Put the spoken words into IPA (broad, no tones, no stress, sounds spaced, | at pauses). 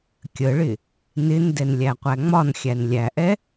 kʲ ə ɭ ɪ | n ɪ n d ɛ n lʲ æ qʷ æ ŋ͡m ɒ n xʲ æ n lʲ æ ʔ ɛ